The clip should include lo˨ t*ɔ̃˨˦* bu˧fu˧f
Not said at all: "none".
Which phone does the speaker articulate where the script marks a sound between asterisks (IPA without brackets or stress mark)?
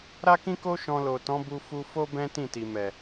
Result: ɔ̃˨˦